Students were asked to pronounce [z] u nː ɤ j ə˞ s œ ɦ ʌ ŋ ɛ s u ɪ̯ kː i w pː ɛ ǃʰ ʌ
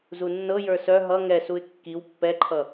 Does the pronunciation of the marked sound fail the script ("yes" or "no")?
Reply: no